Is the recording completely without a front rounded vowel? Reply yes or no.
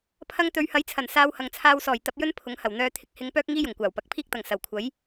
no